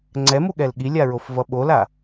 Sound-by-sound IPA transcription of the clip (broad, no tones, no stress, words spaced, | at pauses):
ŋ͡ǀɛmuɠɛl ɠilʲaɹofvʌ ɓola